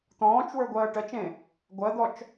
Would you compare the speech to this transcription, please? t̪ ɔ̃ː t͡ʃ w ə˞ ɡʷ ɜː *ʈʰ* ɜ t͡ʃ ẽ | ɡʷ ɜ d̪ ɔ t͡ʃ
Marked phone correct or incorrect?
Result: incorrect